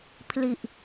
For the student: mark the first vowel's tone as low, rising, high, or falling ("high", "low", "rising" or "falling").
low